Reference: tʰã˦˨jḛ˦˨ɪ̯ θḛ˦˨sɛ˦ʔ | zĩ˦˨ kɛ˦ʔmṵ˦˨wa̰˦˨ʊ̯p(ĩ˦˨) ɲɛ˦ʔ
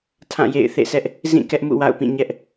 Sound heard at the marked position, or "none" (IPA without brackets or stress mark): ĩ˦˨